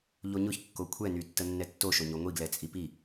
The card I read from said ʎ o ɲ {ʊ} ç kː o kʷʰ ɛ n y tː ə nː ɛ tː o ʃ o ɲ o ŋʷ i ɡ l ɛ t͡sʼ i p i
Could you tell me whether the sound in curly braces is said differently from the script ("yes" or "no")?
no